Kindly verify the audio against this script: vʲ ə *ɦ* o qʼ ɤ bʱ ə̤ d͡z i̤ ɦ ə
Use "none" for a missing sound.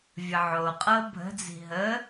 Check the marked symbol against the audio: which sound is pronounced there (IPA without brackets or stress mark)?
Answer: ʕ